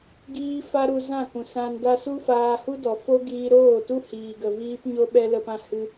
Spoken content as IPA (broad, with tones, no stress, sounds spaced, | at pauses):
ɡ iː˦ f a˦ ɾ u˧ z ã˦˨ k ũ˨ s ã˧ n d a˦ s u˦ f aː˧ h u˦ d ɔ˨ f o˦ ɡ iː˧ ɾ oː˦˨ t u˦ h iː˨ ɡ ə˨ v iː˦ p ɲ o˦ ɓ ɛ˦ l ə˧ p ã˦ h ɨ˧